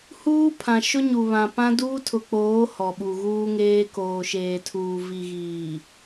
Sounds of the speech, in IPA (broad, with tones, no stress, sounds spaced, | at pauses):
h uː˦ pʰ ã˨ ʃ ʊ˦ ɲ u˨ β ã˨ p ã˦ d uː˦ tʰ ʊ˨ k͡p oː˨˦ h ɔ˨ ɓ u˨ ɣ uː˦ ŋ eː˦ k oː˨ ʃ eː˨ tʰ uː˨ v i˨ ɣ iː˨